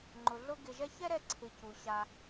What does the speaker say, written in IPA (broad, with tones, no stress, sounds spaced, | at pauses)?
ŋ͡ǃ ʊ˨ ɮ ʊ˦ ɡ ɪ˨ ʒ ɛ˧ ç ɛ˦ ɾ ɛ˧ ǀʰ ɪ˨ c u˨ ɕ a˧